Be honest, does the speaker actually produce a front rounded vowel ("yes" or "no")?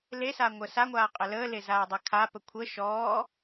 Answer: no